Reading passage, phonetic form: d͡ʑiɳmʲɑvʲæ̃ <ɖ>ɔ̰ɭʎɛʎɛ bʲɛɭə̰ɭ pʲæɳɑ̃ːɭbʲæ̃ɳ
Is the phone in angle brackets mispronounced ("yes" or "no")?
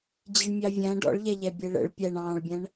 no